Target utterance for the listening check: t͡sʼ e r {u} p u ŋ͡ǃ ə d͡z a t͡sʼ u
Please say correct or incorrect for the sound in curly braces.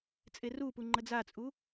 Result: correct